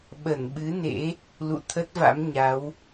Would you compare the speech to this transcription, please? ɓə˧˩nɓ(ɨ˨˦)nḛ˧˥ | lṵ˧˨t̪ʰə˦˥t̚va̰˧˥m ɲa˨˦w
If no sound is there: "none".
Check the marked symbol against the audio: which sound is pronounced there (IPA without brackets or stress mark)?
ɨ˨˦